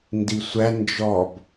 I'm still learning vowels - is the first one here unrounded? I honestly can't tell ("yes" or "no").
yes